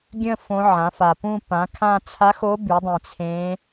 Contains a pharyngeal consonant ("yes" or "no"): yes